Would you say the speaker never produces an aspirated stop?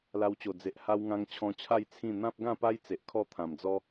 no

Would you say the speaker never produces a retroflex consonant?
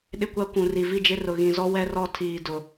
yes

